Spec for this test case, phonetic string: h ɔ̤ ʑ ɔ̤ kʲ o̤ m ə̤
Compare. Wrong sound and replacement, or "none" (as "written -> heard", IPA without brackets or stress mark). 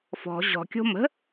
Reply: h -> f